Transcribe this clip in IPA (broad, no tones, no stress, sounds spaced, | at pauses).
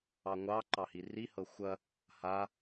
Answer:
ɑ ŋʷ ɑ ǃ ɑ h i r i h ɤ xʷ ɐ | h a